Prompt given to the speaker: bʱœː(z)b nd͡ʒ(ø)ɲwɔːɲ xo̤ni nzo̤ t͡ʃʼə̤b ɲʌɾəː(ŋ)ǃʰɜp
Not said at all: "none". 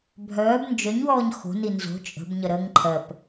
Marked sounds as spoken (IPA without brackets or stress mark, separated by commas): none, œ, ŋ